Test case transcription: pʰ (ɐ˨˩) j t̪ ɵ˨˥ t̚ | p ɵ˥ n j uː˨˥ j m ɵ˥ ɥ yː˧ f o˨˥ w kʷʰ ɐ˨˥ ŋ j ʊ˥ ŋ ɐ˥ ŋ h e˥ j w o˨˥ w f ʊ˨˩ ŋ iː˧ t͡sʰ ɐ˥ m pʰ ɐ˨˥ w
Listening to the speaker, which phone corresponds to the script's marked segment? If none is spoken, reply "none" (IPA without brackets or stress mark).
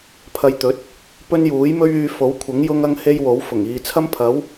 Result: ɐ˧